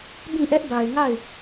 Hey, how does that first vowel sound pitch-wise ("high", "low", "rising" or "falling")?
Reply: falling